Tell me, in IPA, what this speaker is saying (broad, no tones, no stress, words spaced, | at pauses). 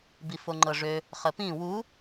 bifoŋ͡ǃɤʐø | χəpĩ wu